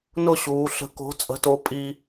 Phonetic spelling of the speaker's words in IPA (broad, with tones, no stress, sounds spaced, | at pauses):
n ʊ˥˨ ɕ uː˩˧ ɬ ə̤˨˥ k o̤˨˥ t͡sʼ ə̤˨˥ t o˨˥ pʼ i˧